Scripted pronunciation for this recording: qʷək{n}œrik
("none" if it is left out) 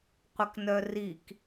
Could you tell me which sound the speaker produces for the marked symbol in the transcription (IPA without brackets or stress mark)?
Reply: n